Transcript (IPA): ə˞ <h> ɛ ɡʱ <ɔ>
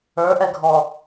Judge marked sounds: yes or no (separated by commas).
no, yes